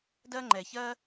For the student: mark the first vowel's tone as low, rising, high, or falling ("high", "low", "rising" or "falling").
high